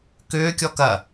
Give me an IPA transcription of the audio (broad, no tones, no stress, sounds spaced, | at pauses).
k ʏː kʲ ɔ k ɐ